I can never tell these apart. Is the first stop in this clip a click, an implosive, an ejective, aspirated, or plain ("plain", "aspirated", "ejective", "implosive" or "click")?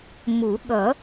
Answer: implosive